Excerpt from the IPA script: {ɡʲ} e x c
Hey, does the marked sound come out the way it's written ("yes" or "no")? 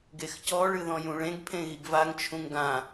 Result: no